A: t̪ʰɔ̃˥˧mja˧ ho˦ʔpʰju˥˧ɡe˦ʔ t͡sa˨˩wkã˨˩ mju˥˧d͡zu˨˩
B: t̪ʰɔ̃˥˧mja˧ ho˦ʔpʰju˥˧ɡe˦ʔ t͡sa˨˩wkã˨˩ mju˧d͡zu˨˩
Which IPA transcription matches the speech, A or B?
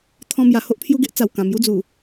A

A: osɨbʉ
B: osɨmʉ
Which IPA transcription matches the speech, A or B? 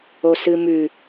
B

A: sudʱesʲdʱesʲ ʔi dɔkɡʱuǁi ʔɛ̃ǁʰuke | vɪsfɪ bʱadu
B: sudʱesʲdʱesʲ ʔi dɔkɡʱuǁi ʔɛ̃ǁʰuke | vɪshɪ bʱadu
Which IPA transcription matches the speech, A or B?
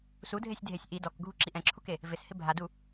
B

